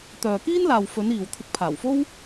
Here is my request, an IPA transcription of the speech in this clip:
t̪ œː˨ k iː˥ n l aː˨ w f ɵ˨˧ n iː˨ w t̪ʰ ɪ˧ k̚ pʰ aː˨˩ w f o˥ w

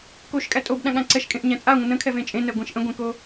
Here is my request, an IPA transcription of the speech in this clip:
k o ʃ kʼ æ tʼ o b ɗ ã ɠ ã ǀ ɛ ʃ kʼ ẽ ʔ ɲ æ̃ t͡sʼ a ŋʷ ə̃ n ə̃ kʰ ɛ v ẽ t͡ʃʼ ẽ n ɛ ɡʷ ẽ ʃ ʔ ə̃ ɡʷ ɛ̃ k o

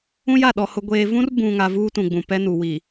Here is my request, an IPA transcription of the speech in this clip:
ũ˦ j a˦˨ ɗ ɔ˨ h ʊ˨ ɡʷ eː˨ v ũ˦ r b ũ˨ ŋ a˨ v uː˦ t ũ˨ ɡ͡b ũ˨ p ɛ˦ n u˨ w i˨

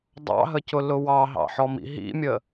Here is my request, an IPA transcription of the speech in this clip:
dˤ ɑ̰ ɦ ə c ʊ l ʊ w ɑ ɦ ɑ̰ ħ ɔ m ḭ ɦ ḭ mʲ ə

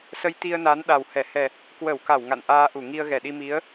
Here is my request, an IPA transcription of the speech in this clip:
s ə˧ j t̪ i˧ ə̯ n a˨˦ n ɗ a˨˩ w h ɛ˧˩ h ɛ˨˩ | k w ə˧˩ w k a˧˩ w ŋ a̰˧˨ n ʔ aː˧ ʔ u˧˩ ŋ i˧ ə̯ ɣ ɛ˧˩ ɗ i˧ m i˨˦ ə̯

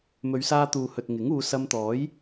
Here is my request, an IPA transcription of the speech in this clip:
m ɵ˨˧ ɥ s aː˧ t̪ uː˨ h ɵ˨ t̚ ŋ ɪ˨˥ ŋ uː˨˧ s ɐ˧ m t̪ ɔː˨˥ j

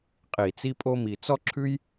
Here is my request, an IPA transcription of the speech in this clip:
qʼ i˧˩˧ t͡s i˥ pʼ o˥ m i˧ t͡s ɔ˥ ǁʰ ʉ˥ j

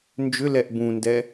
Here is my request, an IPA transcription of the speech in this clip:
n d͡ʒ ʏ l ɛ ʔ b ũ n d ɛ

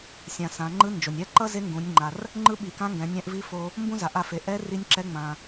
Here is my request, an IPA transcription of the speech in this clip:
sʲ ã˩ s ã˩˧ ŋ͡ǃ ɯ˧˥ n d͡ʒ o˩ nʲ ɛ˧˥ ǃ ʌ˥ z e˧˥ ŋ ɡ ũ˩˧ nʲ ŋ͡ǃ a˩ r | ŋ͡ǃ ɯ˧˥ ɓ i˩ k ã˧˥ ŋ ɡ ɛ̃˩˧ nʲ ɛ̃˧ ʔ v i˧˥ f o˧ | m b ũ˥ z a˩ ʔ a˧ f e˩ ʔ ɛ˧˥ r i˧˥ nʲ ǁ ɛ˧˥ ŋ͡m ã˩

